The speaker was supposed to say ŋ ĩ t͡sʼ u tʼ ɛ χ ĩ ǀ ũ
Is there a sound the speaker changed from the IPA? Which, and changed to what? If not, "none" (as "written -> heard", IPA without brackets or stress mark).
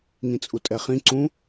none